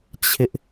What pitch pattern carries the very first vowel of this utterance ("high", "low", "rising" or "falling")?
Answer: high